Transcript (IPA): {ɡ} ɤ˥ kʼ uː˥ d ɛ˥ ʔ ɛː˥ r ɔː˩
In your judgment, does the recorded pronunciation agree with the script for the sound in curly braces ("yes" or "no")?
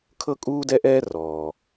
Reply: no